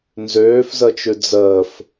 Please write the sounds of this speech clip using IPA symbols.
n z øː f z ə t͡ʃ ʉ d͡z əː f

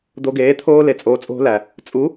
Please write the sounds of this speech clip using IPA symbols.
d̪ o˧ ɡ eː˨˦ t̪ʰ oː˧ l e˨ t͡sʼ oː˨ t͡sʼ o̤˧ l æ˨ | t͡sʼ u˨˦

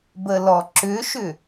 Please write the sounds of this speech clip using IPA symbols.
b ə l ɔ ǁ ʏ ʃ ʏ

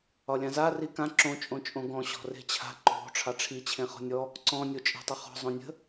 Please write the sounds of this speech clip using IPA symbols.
ɒ lʲ ã z a r i k ã ǁ õ t͡ʃʼ õ t͡ʃʼ õ ɡ ɔ̃ ɕ ɔ̤ r e̤ t͡ɕʰ a̤ ǃ o̤ ʈ͡ʂʰ ɑ ʈ͡ʂʰ i t͡ɕʰ ẽ χ ɔ̤ nʲ ɔ | ǀ ɔ̃ nʲ o t͡ʃʼ e̤ tˤ ə χ ɔ̤ zˤ õ nʲ ə̤

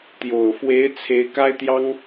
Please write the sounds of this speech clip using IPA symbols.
t̪ j o˨˩ ʊ̯ f w e˧˥ ɪ̯ t͡sʰ e˧˥ ɪ̯ k a˥ ɪ̯ t̪ j ɑ˥ ŋ

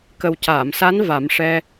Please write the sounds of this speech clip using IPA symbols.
k ə˨˩ w c aː˨˩˨ m s a˧˥ n v a˨˩˦ m ʂ ɛ˧

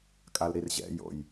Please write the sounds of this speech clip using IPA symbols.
kʼ a l ɾ i r ʑ ɛ̰ j o̰ j

